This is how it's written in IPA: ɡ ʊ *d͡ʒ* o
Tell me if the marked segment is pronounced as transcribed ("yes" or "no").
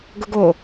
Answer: no